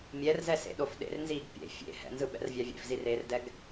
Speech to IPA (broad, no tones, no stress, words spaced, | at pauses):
mʲɛrzɛsḛɗof ɗḛrnziːɡ pʲḛ fʲḛ hɛ̰nzɯɓɛ̰rvʲa vʲḛfzireːrdɛɡ